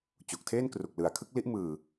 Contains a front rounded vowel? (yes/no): no